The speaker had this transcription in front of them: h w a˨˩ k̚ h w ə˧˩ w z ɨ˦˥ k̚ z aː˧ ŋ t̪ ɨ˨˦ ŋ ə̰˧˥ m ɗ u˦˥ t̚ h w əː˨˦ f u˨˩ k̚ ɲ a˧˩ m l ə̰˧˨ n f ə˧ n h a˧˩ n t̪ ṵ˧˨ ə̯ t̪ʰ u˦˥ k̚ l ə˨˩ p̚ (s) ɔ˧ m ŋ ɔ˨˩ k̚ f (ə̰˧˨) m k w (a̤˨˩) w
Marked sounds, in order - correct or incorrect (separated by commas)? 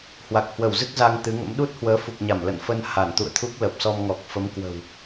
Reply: correct, incorrect, incorrect